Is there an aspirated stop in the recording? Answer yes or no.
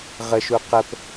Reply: no